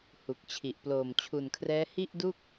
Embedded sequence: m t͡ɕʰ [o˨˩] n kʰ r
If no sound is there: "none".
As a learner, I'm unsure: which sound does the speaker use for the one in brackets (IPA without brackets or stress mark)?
u˨˩